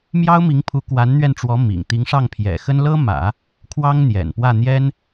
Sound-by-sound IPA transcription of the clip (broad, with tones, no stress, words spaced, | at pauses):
mjɑ˥ʊ̯mi˧˥ŋpʰu˧˥ kwa˧˥nn̪ɥɛ˧nʈ͡ʂwɔ˧˥ mḭ˨˩ŋ t̪i˧˥ŋʂɑ˥˩ŋpʰjɛ̰˨˩xə˥n lɤ˥mä̰˨˩˦ | kʰwɑ˥ŋn̪jɛ̰˨˩npwä˥˩ n̪jɛ˥n